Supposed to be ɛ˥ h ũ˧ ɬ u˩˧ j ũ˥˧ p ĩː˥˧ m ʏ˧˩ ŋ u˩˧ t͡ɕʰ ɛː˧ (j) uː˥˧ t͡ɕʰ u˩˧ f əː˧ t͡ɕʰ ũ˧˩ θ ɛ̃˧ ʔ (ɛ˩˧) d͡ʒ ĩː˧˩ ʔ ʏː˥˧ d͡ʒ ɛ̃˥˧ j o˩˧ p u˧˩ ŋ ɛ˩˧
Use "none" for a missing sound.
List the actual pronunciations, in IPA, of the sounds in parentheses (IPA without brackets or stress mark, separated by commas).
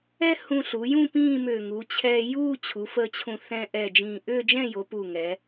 j, ɛ˧˩